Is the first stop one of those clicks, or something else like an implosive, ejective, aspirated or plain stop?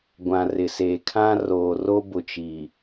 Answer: plain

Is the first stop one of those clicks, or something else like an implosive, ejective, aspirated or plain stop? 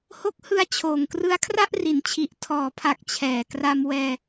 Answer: plain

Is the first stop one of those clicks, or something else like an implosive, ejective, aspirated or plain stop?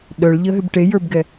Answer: implosive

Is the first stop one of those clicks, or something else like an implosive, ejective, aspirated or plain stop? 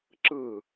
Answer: click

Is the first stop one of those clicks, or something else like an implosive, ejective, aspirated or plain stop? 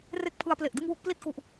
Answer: plain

